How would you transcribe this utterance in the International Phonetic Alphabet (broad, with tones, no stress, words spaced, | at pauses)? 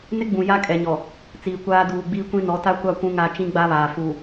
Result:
nɪ˦ɡ͡bũ˨ ja˦kʼɛ˨ɲɔ˨ | t͡siː˨kʷaː˦ duː˨ɡ͡biː˦kʷĩ˦ nɔ˨˦ta˦kʷa˦˨ kʷũ˦ŋa˦ t͡ʃĩ˦ɡ͡ba˦βaː˨ fu˨